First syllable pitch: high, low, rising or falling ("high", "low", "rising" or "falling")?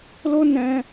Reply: high